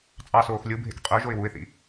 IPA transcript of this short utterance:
t͡sʼ ɑ s oː x lʲ ɯ bʱ ḛ k qʼ ø ʒ o ɪ̯ w u ɪ̯ θ ḭ

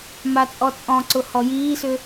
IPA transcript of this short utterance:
m a t͡sʼ ɔ t͡sʼ ɔ̃ ǀ ʊ h ɔ j iː s ʏ

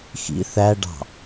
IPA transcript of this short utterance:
x ḭ θ æ ɖ ɑ̤

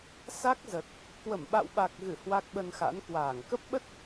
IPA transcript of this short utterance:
s a˦˥ k̚ z ə˨˩ t̚ | k w ə˧˩ m ɓ a̰˧˨ w ɓ a˨˩ k̚ ɣ ɨ˧˩ h w a˦˥ k̚ ɓ ə˧ n x a̰˧˥ n k w aː˧˩ ŋ k ə˦˥ p̚ ɓ ə˦˥ t̚

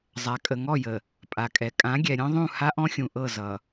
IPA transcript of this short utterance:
zˤ a˨ kʼ ə˨ ŋ ɔ˦˨ j ə˨ | pʼ a˨ kʼ ɛ˨ kʼ ã˨˦ ɡʲ ɛ˨ ɾʲ ɔ̃˦ ðˤ ũ˦˨ h a˦ ʔ ɔ̃˦ xʲ ũ˨ ʔ ɤ˦˨ z ʌ˨

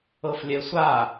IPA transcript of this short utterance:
ɤ f lʲ ɛ sʷ a

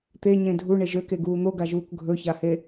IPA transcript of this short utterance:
t̪ e ɲ ẽ dʱ u ɳ e ʒ ø k e ɡ uː n̪ o ɡ a ʒ uː k ɡʱ ɵ ç a h e

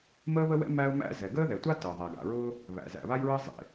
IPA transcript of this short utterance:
m əː˥ β ə˥ w ɛ̰˥ m æ˥ ʊ̯ m æ̰˥ z ɛ˩ ɡ əː˥ ð ɛ˩ tʷ a˥ t əː˩ ðˤ ɛ˩ ɡ a̰˩ ɹ ʊː˥ | β æ̰˩ z æ̰˩ β a˥ j ɹ əː˥ zˤ ḛ˩

